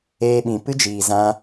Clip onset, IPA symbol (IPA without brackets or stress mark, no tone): eː